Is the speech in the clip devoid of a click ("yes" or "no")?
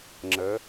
no